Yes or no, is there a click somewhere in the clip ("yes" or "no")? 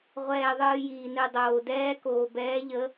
no